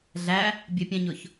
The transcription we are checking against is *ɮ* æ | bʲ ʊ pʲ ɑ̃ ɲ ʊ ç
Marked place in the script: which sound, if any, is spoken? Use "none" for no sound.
ɮ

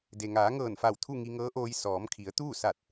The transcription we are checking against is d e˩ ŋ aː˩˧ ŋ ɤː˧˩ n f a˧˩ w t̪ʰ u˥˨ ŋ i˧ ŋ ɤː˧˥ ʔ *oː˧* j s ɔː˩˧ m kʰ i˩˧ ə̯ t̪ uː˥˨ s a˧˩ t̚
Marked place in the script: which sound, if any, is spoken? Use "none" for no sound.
oː˧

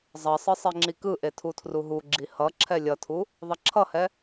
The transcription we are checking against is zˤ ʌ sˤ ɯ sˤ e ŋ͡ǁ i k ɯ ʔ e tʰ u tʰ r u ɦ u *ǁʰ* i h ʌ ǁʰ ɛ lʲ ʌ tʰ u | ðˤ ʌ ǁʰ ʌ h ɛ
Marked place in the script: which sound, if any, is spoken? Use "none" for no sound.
ɡ͡ǁ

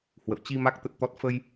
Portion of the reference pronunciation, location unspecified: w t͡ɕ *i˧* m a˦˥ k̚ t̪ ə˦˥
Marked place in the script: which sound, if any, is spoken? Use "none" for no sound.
i˧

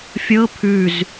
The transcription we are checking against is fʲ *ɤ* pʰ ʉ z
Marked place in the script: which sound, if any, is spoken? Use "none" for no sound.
ɤ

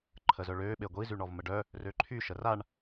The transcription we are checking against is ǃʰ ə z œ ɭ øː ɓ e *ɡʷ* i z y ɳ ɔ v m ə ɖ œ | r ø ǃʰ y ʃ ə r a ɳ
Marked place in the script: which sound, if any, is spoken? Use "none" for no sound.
ɡʷ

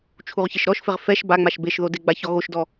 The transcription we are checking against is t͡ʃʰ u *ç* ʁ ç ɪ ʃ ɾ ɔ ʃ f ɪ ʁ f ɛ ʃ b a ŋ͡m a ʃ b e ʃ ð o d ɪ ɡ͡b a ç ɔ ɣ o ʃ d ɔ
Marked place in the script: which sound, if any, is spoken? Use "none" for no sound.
none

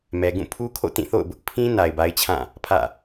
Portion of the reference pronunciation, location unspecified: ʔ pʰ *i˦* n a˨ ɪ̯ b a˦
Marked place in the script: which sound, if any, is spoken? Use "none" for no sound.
ĩ˦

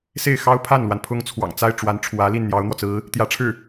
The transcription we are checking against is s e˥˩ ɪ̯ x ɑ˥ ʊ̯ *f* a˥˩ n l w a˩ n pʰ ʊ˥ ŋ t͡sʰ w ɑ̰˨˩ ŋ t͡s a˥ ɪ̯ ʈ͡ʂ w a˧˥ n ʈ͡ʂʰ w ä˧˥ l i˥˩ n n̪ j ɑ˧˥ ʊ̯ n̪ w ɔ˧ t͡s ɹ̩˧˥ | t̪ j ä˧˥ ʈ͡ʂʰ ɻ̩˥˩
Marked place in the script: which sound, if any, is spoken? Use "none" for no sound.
pʰ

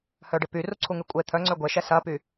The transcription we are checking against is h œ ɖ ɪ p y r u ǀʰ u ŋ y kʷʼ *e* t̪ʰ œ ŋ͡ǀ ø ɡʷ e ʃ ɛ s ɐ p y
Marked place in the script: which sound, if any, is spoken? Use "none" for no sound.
e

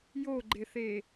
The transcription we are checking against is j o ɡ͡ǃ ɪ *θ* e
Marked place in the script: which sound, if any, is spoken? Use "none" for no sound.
θ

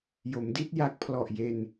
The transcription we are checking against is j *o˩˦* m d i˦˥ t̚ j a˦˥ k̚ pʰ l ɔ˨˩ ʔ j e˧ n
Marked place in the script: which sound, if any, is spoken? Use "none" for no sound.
o˩˦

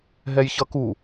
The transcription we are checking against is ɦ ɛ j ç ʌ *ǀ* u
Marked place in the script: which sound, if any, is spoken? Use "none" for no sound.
k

